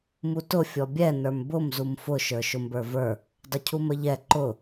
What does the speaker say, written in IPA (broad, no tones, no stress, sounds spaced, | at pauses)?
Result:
m u t ʊ fʲ ɔ bʲ ɛ n ə˞ m b ʊ m z u m f ʊ ʃ ə˞ ʃ ʊ m b ə˞ v ə˞ | dˤ ʊ cʰ u m ə ʎ ɛ ǃ ʊ